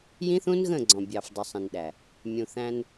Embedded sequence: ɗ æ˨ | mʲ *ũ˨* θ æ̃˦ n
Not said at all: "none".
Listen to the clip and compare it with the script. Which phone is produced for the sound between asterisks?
ũ˨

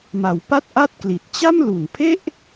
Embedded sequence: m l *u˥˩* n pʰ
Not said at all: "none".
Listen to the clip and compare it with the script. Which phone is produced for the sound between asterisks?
u˨˩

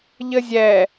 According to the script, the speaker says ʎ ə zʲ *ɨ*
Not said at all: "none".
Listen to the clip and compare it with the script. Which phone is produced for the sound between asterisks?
ɛ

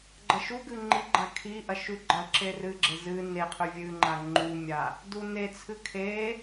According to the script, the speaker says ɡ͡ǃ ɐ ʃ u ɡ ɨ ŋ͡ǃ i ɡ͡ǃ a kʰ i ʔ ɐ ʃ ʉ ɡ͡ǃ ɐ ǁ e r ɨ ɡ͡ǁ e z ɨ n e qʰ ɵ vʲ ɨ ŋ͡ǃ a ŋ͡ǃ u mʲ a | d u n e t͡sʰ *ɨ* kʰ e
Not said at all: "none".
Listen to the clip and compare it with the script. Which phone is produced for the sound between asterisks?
ɨ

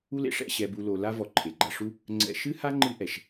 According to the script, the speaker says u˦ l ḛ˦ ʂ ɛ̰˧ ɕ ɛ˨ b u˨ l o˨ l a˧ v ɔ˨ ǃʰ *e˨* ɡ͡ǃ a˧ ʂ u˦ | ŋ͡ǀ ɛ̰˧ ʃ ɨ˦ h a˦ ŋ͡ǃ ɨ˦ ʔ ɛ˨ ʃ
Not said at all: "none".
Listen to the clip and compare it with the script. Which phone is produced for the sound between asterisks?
e˨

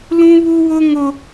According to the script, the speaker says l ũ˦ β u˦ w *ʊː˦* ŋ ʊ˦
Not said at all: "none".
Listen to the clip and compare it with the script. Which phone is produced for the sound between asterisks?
ʊ˦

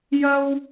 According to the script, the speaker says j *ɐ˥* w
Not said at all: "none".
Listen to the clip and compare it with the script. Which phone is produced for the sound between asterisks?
ɐ˥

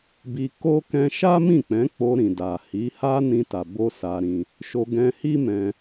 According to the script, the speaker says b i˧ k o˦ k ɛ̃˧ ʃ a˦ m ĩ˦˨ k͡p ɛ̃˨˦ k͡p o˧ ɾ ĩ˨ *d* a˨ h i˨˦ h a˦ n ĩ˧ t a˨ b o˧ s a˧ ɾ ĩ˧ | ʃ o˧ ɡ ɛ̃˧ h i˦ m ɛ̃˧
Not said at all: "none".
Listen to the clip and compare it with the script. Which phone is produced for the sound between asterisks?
d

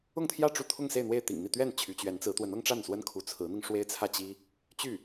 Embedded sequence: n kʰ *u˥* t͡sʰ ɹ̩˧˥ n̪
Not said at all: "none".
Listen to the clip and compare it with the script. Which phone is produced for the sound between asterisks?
u˧˥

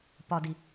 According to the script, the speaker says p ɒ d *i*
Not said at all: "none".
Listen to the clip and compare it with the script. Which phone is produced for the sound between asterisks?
i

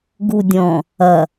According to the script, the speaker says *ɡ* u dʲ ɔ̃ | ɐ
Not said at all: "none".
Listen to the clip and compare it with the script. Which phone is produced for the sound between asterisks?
ɡ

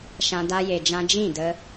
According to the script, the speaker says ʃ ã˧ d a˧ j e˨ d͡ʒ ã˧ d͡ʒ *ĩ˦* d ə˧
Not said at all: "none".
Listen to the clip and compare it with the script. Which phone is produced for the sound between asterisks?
ĩ˦˨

